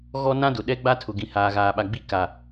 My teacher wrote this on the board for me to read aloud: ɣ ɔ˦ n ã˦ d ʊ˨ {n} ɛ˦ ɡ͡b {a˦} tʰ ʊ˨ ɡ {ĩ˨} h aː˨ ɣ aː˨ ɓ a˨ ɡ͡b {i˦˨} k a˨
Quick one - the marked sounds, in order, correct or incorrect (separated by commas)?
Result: incorrect, correct, correct, incorrect